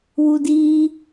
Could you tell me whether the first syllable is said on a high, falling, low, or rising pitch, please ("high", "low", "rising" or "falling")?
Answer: high